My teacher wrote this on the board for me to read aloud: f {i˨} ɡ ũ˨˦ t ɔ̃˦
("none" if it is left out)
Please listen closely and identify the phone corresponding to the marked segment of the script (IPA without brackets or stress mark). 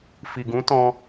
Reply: i˨